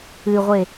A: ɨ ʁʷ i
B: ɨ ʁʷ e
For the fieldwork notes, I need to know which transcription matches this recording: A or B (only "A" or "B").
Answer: B